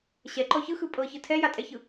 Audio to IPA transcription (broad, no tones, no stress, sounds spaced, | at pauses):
ɕ ɛ ǃ ɔ ç ɯ x ɯ pʼ ɤ ç ɯ tʰ ɛ j a tʼ ɛ ç ɯ